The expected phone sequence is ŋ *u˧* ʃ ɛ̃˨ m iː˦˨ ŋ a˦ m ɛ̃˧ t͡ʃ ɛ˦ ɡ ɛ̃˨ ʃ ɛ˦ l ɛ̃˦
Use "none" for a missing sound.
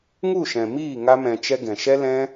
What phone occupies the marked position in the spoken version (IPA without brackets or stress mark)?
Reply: u˦˨